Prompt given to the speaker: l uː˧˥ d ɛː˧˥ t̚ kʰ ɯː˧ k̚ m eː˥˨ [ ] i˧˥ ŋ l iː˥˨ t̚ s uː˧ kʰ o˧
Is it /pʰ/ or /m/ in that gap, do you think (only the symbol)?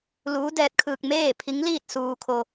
pʰ